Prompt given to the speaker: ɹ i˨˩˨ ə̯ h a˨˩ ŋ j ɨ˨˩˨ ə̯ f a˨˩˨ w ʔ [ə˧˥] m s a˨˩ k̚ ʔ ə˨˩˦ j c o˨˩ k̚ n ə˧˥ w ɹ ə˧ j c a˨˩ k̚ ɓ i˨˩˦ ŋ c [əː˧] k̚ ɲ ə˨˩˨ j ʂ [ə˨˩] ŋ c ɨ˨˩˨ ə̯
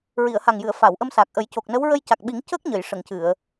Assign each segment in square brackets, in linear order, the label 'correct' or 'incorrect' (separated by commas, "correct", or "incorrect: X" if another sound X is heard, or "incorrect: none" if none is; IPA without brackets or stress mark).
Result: incorrect: ə˧, incorrect: əː˦˥, incorrect: ə˨˩˨